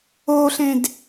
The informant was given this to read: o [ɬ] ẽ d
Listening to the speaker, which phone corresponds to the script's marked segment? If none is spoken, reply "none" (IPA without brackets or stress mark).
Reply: ɬ